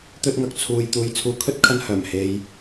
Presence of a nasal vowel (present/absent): absent